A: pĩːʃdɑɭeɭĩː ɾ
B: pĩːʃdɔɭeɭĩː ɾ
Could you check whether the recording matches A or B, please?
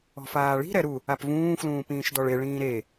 B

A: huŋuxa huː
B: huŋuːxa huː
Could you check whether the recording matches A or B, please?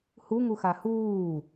A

